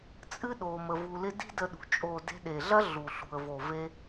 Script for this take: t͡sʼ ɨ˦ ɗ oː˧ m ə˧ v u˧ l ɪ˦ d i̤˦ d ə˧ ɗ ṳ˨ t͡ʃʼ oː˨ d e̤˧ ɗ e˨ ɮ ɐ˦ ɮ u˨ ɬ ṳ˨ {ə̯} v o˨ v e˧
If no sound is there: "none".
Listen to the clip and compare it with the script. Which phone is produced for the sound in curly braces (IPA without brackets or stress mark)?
ə̯